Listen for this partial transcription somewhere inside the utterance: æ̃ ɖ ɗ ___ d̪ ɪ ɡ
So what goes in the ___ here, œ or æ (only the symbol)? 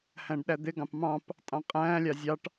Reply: æ